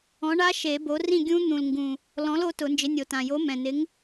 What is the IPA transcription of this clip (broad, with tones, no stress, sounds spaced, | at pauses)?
ɔ̃˨˥ ɳ a˦˥ ʃ e˨˩˦ b o˨˥ r ĩ˥˨ ɡʲ ũ˦˥ n̪ ũ˨˩ l ŋ ɡ ũ˨˩ | l ɔ̃˨˥ l o˨˥ t ʊ˨˩˦ n d͡ʒ ɪ˨˥ nʲ o˨˩ t ã˨˩ j o˨˥ m ɛ̃˨˩ n ɪ˨˥ ŋ